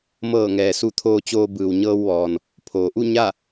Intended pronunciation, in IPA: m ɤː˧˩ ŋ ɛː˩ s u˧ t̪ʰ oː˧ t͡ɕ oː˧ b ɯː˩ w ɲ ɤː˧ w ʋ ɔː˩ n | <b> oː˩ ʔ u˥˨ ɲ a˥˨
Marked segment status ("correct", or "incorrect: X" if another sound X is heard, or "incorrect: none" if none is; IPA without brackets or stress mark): incorrect: pʰ